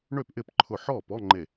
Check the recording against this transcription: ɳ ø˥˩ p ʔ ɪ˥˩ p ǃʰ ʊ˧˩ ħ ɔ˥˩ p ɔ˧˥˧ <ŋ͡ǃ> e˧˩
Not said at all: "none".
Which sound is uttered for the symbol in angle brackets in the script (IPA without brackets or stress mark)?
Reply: ŋ͡ǃ